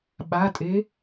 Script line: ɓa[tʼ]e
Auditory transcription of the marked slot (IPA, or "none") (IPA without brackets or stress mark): tʼ